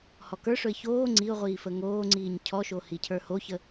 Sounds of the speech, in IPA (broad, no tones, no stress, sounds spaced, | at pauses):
h ɔ k ə˞ ʂ ɵ ɪ̯ ç oː ŋ͡ǀ i ʊ̯ ʁʷ iː f ə ŋ oː ŋ͡ǀ iː ɲ cʰ ɔ ʃ o h i cʰ ə˞ h o ç ə